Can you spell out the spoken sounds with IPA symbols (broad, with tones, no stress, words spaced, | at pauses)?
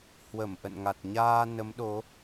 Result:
hwə˧˩m ʔə̰˧˨nŋa˨˩t̚ ɲaː˧ nə˨˦mɗo˨˦